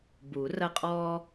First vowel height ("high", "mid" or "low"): high